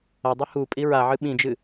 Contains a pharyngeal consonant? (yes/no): yes